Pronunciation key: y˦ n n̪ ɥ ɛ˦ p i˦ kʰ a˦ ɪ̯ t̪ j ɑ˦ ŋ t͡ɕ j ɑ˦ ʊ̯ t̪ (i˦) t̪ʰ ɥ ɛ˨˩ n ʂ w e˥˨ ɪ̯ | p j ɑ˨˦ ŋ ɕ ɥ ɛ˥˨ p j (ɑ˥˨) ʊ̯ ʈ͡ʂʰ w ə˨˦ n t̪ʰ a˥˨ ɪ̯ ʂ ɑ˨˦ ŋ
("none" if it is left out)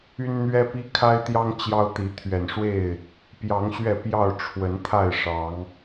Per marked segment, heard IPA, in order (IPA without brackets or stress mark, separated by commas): i˨˦, ɑ˥˨